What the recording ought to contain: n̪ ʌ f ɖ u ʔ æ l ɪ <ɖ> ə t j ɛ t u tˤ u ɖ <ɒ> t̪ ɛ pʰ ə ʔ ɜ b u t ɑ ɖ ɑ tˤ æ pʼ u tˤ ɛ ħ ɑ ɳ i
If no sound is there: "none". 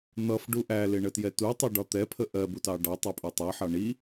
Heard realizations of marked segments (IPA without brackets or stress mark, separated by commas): ɳ, ɒ